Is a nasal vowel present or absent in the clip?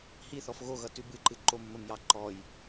absent